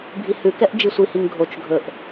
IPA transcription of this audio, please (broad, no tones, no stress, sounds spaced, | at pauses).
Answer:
bʱ i h ʉ k ɛ ʔ d͡ʒ i sʷ i h i ŋ ɡʱ o t͡ʃ ɡʱ ɵ ʔ